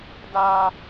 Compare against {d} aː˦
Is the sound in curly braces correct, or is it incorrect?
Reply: correct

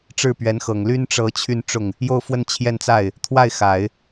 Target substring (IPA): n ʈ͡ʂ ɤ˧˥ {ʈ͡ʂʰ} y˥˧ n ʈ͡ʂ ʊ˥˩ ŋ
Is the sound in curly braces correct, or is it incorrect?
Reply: incorrect: t͡ɕʰ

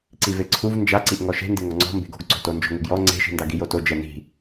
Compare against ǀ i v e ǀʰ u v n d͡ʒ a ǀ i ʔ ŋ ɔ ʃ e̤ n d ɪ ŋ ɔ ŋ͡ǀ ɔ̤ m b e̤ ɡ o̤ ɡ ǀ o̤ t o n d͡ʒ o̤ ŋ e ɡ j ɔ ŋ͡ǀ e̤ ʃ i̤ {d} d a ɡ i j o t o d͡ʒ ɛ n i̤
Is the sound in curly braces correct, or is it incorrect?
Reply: incorrect: n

